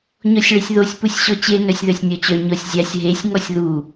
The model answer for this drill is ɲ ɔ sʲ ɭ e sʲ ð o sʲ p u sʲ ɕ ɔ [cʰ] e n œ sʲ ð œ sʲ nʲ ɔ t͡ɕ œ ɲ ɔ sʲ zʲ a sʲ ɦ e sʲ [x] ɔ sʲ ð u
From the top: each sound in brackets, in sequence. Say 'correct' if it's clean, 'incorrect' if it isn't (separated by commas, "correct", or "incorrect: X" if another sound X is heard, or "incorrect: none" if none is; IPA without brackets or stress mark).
incorrect: t͡ɕ, incorrect: ŋ